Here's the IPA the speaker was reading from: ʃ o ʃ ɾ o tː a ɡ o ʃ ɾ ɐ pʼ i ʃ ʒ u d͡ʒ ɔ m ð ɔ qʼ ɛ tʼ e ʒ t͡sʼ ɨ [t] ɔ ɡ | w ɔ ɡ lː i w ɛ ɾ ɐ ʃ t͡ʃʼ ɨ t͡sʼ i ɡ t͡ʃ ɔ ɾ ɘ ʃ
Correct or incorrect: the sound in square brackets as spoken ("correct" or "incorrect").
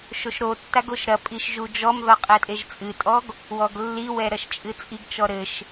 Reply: incorrect